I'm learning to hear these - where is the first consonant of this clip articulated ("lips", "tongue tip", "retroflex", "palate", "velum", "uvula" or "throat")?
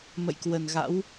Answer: lips